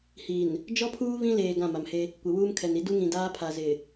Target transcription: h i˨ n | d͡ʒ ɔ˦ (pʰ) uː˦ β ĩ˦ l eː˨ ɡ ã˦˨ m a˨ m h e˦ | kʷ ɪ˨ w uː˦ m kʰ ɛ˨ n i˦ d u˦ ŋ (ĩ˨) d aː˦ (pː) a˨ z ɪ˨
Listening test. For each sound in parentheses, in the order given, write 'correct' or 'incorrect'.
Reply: correct, correct, incorrect

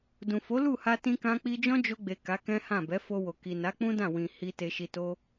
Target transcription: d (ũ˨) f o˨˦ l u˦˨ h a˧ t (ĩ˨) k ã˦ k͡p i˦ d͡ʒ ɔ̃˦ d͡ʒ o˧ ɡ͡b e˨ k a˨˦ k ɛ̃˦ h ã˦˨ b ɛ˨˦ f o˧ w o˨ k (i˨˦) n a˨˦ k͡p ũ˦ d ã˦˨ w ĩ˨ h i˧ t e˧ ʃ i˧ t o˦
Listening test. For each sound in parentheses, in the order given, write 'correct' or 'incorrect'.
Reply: correct, incorrect, incorrect

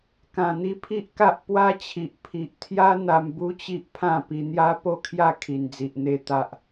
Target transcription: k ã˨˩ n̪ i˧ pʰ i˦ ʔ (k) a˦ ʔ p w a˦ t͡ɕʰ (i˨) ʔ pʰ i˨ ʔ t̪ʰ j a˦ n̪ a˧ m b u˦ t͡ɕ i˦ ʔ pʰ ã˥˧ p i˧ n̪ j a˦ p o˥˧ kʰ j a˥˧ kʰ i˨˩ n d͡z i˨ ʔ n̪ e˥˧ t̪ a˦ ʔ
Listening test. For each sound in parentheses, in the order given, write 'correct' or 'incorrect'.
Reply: correct, correct

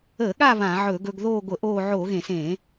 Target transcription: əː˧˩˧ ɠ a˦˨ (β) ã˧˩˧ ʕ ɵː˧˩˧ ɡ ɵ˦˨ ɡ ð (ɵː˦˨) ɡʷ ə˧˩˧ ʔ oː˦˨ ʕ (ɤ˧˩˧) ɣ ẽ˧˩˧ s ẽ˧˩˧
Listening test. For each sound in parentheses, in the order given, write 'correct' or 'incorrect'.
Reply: correct, incorrect, incorrect

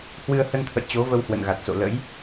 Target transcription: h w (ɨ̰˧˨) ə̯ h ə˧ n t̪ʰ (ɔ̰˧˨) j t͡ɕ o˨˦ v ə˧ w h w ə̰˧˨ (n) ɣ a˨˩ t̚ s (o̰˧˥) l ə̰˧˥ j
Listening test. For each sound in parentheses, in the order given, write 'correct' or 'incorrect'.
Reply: incorrect, incorrect, correct, incorrect

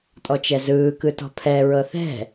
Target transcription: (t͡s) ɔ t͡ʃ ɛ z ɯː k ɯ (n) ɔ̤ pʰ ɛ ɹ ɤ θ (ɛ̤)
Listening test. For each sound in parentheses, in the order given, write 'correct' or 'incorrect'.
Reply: incorrect, incorrect, correct

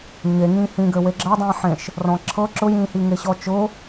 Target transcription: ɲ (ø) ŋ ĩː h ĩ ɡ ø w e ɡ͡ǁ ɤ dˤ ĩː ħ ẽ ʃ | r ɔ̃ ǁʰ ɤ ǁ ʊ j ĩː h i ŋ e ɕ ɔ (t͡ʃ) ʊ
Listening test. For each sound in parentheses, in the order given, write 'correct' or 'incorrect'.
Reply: incorrect, correct

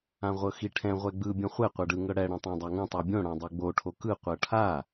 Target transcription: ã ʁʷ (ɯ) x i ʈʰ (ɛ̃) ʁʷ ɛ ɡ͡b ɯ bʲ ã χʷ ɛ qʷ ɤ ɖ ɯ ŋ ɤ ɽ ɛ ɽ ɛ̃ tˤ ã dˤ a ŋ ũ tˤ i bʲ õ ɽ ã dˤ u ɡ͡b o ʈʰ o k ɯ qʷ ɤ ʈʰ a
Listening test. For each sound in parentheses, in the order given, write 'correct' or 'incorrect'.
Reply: incorrect, correct

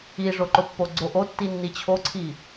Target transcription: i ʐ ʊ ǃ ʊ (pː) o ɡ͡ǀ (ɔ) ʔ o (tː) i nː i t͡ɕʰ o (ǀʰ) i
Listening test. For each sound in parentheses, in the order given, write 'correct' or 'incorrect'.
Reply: correct, incorrect, correct, correct

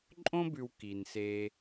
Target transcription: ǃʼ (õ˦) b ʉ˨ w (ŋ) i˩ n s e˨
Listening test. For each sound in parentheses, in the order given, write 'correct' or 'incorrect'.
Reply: correct, incorrect

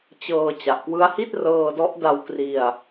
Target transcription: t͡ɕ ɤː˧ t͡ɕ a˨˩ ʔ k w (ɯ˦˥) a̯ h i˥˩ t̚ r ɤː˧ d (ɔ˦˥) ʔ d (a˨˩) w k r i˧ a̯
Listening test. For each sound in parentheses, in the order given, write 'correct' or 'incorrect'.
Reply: correct, correct, incorrect

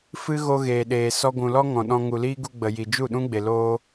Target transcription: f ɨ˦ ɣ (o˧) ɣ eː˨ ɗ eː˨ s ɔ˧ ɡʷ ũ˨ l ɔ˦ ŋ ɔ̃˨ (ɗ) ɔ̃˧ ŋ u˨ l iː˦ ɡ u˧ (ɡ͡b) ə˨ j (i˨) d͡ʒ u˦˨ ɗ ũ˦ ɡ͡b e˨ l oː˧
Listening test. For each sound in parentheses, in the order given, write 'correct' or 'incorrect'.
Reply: correct, correct, correct, correct

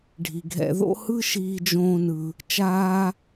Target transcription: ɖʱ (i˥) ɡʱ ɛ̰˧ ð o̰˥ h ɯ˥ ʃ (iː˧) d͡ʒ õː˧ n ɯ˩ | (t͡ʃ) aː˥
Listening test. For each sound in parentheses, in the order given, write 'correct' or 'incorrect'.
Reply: incorrect, correct, correct

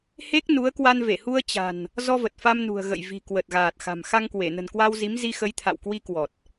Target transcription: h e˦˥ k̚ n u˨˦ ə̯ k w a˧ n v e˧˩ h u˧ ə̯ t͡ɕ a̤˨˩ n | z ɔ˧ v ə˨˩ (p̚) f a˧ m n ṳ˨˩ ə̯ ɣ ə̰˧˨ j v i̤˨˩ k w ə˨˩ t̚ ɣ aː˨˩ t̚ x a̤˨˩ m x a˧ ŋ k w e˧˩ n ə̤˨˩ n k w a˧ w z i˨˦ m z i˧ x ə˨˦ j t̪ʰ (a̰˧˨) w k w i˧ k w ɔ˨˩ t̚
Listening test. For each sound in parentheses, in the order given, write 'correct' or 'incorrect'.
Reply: incorrect, correct

